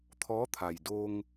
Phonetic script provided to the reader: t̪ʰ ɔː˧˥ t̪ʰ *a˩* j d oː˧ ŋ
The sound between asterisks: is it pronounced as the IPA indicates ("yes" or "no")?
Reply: yes